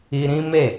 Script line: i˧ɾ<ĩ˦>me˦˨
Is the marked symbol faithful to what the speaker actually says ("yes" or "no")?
yes